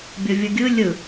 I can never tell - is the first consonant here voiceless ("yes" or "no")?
no